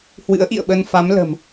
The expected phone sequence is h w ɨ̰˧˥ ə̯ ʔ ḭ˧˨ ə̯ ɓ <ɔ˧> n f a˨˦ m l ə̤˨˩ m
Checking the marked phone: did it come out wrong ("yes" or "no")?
yes